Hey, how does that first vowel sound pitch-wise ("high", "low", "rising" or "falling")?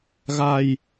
low